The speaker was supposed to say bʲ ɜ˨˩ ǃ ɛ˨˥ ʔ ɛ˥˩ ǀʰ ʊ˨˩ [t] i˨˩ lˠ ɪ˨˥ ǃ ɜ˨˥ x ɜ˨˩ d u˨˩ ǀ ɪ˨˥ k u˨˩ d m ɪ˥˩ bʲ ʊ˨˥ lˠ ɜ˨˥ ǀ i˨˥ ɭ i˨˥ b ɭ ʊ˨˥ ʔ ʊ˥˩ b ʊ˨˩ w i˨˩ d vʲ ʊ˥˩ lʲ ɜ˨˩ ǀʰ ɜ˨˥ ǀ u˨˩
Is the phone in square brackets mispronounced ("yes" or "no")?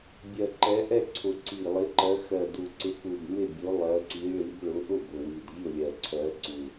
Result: yes